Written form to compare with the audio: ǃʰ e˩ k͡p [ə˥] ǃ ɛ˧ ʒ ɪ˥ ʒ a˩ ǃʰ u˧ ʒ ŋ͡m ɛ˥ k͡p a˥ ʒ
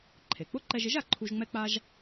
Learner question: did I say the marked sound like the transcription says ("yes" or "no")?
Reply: no